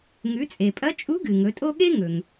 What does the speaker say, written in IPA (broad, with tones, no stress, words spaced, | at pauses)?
ŋʉ˩˧t͡sʼe˩pʼɐ˧˥t͡ʃʼu˧˥ ɡɨ˩ŋɵ˩˧tʼo˥ ɠe˥ŋɵ˩ŋ